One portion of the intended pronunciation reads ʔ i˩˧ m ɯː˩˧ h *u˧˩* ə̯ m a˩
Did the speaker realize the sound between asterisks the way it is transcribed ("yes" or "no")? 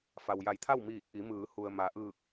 no